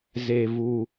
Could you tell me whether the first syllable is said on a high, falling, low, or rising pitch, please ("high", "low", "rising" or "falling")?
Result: low